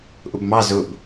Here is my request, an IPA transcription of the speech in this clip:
ʔʊbmɑ zʊb

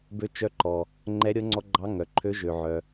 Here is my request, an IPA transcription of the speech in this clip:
bø˧˥t͡ʃœ˧˥ǃɔ˩ | ŋ͡ǃɛ˧˥ɾʲɤ˧˥ ŋ͡ǀɔ˧˥ɡ͡ǃɑ˧˥ ŋœ˩ǃʰø˧˥ ʒø˩ʕœ˩

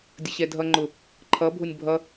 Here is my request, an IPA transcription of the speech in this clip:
dʲəɕɛdʱʌ ŋ͡ǃʊ | ǃʰʌ bʱʊnʲbʱʌ

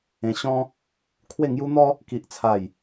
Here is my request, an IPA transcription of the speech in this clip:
ẽ˧ɕɔ̃˦ | kʰwe˥˧ ŋju˦n̪ɔ˦ | ki˦ʔt͡sʰa˥˧j

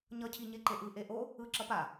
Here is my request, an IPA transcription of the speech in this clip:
ɲʌcʰi ɲeǃeʔɯʔe ʔo | ɯǁʌ pa

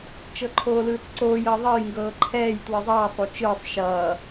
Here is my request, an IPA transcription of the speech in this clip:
t͡ʃɤǃʰoːlɯːt͡sǀoːj ɤðˤʌj ŋɡɤːǃʰɛːj twɯzˤʌː sˤot͡ʃɯːsˤ ʃʌː

